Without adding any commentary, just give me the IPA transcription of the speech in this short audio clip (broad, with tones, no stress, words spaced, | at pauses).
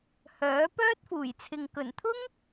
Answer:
hœː˨˥ pœː˥t̚fuː˨˩jt͡sʰɪ˨ŋ kɵ˨˩nt̪ʰʊ˥ŋ